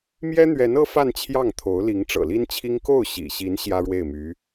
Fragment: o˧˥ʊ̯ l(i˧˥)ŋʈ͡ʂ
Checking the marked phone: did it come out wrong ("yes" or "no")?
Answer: no